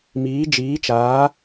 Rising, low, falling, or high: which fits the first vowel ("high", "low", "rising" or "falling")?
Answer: rising